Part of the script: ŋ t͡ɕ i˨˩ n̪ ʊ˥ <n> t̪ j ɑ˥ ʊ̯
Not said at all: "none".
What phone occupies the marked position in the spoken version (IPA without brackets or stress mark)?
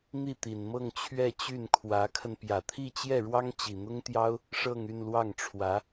ŋ